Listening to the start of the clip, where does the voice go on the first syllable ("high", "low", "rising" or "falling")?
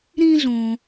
high